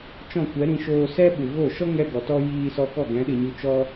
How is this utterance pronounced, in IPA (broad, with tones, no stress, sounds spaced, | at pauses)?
t͡ʃ ɔ̃˦˨ kʷ ɛ˨˦ ɾ ĩ˧ ʃ oː˧ s ɛ˦ ɓ u˨ ɣ o˦˨ ʃ ɔ˦ ŋ ɛ˧ ɡ ɔ˨ t ɔ˦ j iː˧ s ɔ˧ k ɔ˦˨ ɡ ɛ̃˨˦ ɗ ɨ˨ ɲ u˧ t͡ʃ ɔ˦